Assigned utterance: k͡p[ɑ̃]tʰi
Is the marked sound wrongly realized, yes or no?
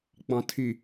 no